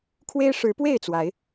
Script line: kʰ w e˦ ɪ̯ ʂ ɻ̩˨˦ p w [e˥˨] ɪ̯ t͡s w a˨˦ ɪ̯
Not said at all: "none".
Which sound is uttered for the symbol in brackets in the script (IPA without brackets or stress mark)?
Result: e˥˨